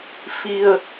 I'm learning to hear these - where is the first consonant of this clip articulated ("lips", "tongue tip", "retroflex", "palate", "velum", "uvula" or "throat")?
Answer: lips